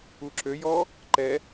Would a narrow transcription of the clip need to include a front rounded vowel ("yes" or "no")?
yes